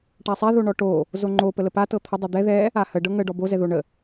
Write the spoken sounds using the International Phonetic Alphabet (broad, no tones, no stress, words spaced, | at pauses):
ʈasˤɛ ðoɳɔʈo | zoŋ͡ǃo pələpa tɤt̪ʰə dˤɛd̪ɛ ðɛ | ahə ɖɤŋə ɖɔbo zɛðoɳə